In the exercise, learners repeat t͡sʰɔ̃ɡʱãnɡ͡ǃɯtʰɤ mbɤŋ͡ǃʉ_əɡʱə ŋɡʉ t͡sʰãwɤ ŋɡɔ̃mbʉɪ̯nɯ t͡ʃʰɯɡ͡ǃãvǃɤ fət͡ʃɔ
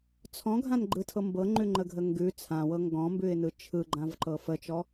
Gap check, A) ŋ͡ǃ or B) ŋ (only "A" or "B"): A